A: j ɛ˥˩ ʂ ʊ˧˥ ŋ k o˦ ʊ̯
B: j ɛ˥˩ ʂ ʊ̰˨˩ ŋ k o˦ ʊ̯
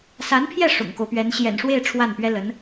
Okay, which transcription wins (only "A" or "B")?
B